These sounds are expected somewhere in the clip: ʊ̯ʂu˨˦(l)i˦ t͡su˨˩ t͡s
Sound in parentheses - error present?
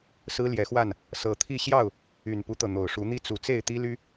yes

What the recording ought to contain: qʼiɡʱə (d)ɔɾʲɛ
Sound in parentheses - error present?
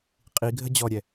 yes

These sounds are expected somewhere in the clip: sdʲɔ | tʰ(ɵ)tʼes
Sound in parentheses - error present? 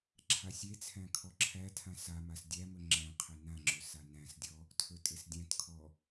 no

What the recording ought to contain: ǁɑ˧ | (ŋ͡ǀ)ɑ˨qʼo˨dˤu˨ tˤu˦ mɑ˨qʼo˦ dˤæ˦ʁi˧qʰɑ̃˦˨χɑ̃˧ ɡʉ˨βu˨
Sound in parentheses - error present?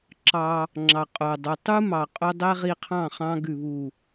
yes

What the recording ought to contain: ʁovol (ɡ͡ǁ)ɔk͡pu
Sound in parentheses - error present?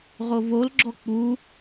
no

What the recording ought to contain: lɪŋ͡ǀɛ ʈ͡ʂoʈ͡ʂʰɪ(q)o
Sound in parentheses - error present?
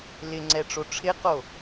no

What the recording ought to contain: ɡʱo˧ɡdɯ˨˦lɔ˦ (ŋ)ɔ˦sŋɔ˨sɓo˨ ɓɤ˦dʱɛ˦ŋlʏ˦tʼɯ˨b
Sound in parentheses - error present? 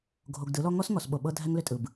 no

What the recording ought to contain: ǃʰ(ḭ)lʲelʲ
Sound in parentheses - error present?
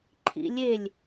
no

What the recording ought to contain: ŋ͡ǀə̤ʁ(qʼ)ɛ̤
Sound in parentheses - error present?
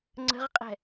no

